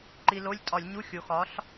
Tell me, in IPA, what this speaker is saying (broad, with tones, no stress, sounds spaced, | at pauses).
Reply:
ǃ i˧ l o˧˥˧ lʲ tʼ ɒ˧˩˧ lʲ ɲ u˧˥˧ xʲ o˩˧ x ɒ˩˥ ɬ